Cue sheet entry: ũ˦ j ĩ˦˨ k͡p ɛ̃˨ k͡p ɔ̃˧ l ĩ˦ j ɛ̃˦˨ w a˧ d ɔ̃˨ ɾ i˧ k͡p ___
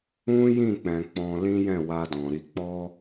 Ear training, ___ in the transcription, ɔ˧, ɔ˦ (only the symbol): ɔ˦